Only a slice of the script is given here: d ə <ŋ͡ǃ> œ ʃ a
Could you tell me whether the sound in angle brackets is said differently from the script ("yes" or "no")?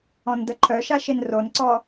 yes